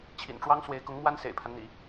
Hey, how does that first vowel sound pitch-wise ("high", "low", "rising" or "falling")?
low